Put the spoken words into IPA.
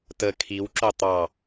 tə kʰiwǁo tˤɑ

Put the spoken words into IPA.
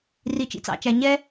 ri˩t͡ʃḭ˨t͡sɑ̰˨t͡ʃæ˩ ɲɛ˥

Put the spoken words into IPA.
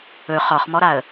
ɵ χɒχmɔɾaə̯

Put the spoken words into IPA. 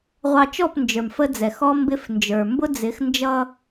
ʁʷɑ˨t͡ʃɔ˦˨p nd͡ʒə˞˨mfə˦d͡zɛ˨ xɔ˦mbɪ˦fnd͡ʒə˞˨ mbʊ˦ d͡zɪ˨˦xnd͡ʒʌ˦

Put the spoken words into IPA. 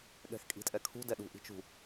ɠɛ̤xkʼi̤tʼɛkʰṳ dɛɗṳ ʔi̤t͡ʃṳ

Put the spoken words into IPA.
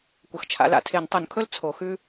kʷɐ˨xt͡ʃʰa̰˨˩˦la̰˩˥tʰe˨˩˦n tˤu˨˩˦nkʰɵ˥l t͡sʰo˨˩˦xʉ˥

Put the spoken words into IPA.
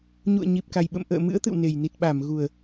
ɲṵ˧˨ə̯ɲi˨˩p̚ka˨˩jɓə̰˧˨m ʔə̰ː˧˨mɨ̰˧˥ə̯ t̪ɨ̰˧˨wne˨˩jni˨˩t̚ ɓa˧˩mɣu˨˩ə̯

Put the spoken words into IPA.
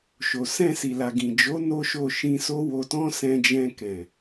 ʃo˨ sɛ̃˧si˨la˨ ɡĩ˨d͡ʒo˨˦ no˦ʃo˦˨ ʃĩ˧so˦wo˧tɔ̃˦ sɛ̃˧d͡ʒɛ̃˧kɛ̃˨

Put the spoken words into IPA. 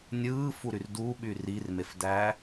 nʲɯːfuɾyr duɓyr irmefdæː

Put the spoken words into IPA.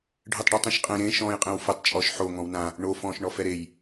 ɖʱɯtˤɖɯtˤĩʃqʼẽ ɾẽ ʃɔ̃ːjqʼẽwfetˤ t͡ʃʼɔʃ ħo ŋɔ̃wnã | ɳo fɔ̃ːʃɳɔfɛɾej

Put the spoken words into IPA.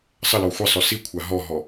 sˤəlɔ xʷəsˤɵ sikʷʰa ɦɔɦɔ

